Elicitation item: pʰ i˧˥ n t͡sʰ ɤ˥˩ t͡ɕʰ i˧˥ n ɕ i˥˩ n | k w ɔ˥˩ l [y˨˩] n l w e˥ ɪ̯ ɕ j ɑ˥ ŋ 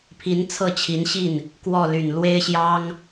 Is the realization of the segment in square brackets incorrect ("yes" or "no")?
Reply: no